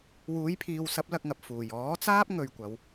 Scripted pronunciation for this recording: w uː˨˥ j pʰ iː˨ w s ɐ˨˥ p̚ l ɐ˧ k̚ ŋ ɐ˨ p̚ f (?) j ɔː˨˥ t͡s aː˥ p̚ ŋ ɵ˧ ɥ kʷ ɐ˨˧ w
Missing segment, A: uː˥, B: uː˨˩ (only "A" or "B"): B